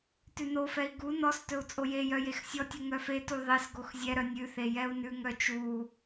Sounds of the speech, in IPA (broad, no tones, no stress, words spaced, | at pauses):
tʉnofɛi̯ ɡu nɔstɵu̯ t͡sʼojejœ jexsʲɔtʲu ŋœfetu ðˤes ɡoxzʲɛɾœnʲ ʉθe jɛu̯nʉŋœ t͡ʃu